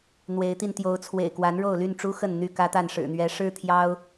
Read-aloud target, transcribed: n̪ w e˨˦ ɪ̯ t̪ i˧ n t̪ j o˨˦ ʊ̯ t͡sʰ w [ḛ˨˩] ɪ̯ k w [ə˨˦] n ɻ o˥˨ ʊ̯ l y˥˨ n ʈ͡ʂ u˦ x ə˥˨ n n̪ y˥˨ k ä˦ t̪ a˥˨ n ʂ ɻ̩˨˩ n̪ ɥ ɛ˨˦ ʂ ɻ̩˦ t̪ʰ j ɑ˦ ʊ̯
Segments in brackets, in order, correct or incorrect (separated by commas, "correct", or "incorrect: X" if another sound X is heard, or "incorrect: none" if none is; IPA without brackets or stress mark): correct, incorrect: a˨˦